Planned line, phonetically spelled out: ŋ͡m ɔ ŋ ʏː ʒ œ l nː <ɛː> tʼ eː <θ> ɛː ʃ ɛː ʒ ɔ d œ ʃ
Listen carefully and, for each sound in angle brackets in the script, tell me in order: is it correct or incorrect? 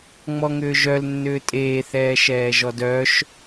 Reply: incorrect: ʏː, correct

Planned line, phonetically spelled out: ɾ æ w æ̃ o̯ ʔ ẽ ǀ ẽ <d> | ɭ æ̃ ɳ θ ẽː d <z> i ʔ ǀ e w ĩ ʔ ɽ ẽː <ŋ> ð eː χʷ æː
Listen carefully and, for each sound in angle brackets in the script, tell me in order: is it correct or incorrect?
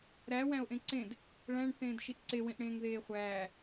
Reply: correct, incorrect: ʃ, correct

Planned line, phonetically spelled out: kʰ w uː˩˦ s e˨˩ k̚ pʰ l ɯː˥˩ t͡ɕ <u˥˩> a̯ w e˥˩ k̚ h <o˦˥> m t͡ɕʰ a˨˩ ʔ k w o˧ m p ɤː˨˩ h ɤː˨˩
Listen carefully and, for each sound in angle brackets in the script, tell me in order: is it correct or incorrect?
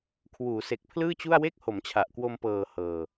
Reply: correct, incorrect: o˩˦

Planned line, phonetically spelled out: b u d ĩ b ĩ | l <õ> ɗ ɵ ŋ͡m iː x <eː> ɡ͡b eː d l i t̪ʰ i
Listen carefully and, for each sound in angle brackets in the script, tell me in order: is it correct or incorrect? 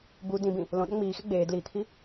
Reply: correct, incorrect: e

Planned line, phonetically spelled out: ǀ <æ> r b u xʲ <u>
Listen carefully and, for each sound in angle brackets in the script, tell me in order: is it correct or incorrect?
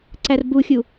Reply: correct, correct

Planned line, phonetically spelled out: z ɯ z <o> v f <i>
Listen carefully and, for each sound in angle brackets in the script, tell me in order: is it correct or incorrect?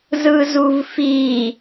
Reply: incorrect: u, correct

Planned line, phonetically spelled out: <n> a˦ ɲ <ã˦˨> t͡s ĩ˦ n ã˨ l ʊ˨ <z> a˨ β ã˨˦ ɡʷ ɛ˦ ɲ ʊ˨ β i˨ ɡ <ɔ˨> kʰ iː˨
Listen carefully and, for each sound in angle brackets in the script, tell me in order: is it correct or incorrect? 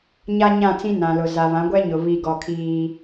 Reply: incorrect: ɲ, correct, correct, correct

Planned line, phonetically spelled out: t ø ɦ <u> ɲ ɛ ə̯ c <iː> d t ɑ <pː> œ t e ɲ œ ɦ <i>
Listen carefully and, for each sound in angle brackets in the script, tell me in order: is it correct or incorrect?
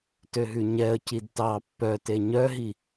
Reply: incorrect: ʉ, incorrect: i, correct, correct

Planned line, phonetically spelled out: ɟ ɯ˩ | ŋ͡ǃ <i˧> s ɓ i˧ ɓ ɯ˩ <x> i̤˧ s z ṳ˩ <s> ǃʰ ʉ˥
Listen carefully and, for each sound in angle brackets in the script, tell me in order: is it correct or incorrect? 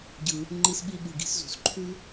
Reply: correct, incorrect: ɡ, correct

